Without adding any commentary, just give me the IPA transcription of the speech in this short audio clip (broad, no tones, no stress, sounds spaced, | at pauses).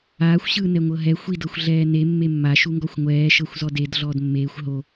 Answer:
aː xʷ ɕ ɯː n ɛ ŋʷ ɤ ɦ ɛ xʷ i d ɤ xʷ ɮ ɛː n e mː e mː a ʃ u ŋ ɡ ɔ xʷ ŋʷ ɛː ʃ ɤ xʷ z ɔ d e d ɮ ɔː d mː eː xʷ ɦ o